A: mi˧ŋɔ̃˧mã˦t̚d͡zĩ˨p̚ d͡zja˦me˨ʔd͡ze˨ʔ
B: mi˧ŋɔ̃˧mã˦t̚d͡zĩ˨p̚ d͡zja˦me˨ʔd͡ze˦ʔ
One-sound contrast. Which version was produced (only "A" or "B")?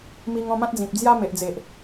A